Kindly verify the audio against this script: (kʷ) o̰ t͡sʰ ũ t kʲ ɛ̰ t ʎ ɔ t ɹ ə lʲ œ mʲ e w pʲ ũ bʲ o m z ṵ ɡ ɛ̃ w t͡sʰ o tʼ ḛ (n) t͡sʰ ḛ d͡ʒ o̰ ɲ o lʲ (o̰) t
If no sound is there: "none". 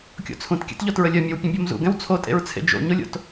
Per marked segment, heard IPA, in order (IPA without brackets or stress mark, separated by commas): kʲ, ɹ, o̰